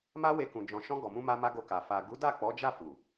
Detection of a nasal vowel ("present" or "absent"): present